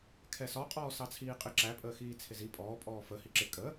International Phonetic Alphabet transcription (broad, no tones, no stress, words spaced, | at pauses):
kʰɛsɒqʼɔː sɑt͡sʰiːqʼɪ ǁæpʼəːxiː t͡sʰɪzi pʼɔː pʼɔːfə hiǁɪ kʼəː